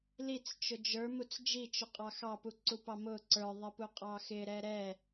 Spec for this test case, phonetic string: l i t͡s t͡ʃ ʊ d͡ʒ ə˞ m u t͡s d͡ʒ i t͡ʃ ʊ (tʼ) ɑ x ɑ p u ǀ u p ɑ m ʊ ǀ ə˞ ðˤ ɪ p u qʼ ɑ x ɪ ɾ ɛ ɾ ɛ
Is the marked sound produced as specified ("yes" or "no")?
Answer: no